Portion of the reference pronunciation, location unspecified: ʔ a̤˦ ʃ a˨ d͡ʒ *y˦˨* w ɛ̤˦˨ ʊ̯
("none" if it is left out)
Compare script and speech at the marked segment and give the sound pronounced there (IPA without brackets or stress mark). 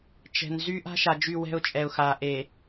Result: y˦˨